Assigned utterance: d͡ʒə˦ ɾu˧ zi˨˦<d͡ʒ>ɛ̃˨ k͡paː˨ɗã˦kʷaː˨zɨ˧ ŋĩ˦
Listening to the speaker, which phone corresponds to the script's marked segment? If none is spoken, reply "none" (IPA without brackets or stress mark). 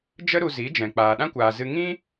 d͡ʒ